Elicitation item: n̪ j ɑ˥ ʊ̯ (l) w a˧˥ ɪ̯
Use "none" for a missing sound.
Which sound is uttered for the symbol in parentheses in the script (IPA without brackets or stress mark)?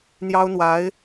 n̪